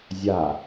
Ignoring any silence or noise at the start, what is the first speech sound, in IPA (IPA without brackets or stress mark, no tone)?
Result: zʲ